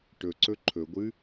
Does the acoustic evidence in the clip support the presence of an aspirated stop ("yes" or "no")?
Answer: yes